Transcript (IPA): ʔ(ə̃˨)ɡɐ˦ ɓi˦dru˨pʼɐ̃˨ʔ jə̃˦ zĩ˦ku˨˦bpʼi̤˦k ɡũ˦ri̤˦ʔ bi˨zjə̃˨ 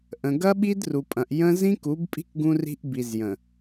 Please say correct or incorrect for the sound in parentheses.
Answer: correct